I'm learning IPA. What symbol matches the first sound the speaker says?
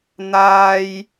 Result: n̪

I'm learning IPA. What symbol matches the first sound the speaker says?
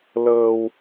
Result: l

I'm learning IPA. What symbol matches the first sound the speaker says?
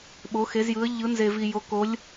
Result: ɓ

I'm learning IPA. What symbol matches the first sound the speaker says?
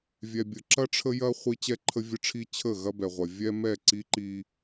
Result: vʲ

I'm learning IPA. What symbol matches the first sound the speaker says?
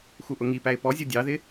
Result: x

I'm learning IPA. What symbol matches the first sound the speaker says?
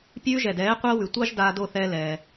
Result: pʲ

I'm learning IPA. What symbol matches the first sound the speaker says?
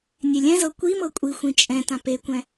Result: nʲ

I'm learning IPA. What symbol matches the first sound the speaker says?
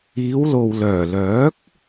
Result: iː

